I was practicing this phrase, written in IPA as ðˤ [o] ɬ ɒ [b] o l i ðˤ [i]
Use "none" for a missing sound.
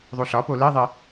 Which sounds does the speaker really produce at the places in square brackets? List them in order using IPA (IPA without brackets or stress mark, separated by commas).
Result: u, p, i